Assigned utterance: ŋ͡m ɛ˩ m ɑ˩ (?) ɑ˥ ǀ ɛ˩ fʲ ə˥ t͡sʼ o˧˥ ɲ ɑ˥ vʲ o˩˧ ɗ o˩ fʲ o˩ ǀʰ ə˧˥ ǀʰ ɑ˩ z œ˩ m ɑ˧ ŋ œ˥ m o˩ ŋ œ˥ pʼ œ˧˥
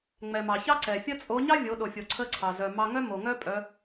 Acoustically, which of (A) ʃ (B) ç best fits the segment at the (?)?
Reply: B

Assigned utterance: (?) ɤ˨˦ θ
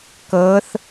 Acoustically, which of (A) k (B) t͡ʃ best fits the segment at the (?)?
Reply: A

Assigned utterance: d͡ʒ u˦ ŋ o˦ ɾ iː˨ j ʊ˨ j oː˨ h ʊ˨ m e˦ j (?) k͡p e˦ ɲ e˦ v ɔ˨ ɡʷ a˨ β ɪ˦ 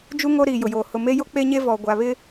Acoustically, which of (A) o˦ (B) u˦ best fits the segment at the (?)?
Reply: A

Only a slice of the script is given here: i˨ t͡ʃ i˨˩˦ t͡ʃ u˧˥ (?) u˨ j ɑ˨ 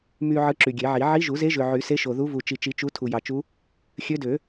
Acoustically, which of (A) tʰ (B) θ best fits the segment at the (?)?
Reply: A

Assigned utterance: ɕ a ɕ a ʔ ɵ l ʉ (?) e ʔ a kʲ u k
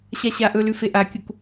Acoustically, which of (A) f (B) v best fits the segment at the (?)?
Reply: A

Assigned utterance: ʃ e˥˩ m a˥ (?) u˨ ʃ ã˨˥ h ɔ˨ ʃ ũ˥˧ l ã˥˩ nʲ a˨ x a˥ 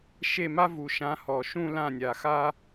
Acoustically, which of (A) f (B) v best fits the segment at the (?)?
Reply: B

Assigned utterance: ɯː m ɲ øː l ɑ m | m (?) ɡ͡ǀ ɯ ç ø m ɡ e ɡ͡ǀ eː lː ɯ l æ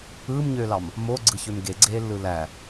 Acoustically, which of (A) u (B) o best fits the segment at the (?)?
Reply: B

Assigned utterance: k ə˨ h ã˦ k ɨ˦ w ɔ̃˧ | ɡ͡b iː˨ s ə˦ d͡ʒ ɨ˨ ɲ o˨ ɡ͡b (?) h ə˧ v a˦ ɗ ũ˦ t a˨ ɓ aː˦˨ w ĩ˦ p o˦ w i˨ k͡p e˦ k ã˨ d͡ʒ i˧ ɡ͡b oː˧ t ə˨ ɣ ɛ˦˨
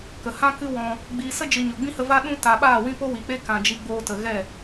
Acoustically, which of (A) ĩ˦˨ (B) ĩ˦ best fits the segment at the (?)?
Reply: B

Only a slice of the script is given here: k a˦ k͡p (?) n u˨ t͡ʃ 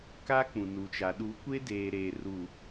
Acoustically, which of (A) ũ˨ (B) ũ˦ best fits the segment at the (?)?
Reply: A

